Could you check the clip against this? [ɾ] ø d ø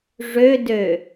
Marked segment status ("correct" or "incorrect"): incorrect